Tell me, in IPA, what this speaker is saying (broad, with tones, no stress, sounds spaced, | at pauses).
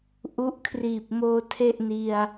ʔ u˦˥ ʔ kʰ r iː˨˩ p̚ m oː˧ tʰ e˥˩ ʔ n i˧ a̯